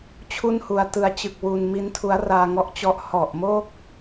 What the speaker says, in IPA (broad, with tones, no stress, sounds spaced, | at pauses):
t͡ɕʰ u˥˩ n h u˧ a̯ t ɯ˧ a̯ t͡ɕ ɯ˨˩ k̚ w u˧ n m i˦˥ n tʰ u˦˥ a̯ r aː˧ ŋ ɔ˦˥ ʔ t͡ɕ ɔ˦˥ ʔ h ɔ˨˩ ʔ m o˥˩ k̚